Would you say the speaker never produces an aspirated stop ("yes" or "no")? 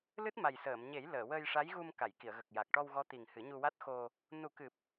yes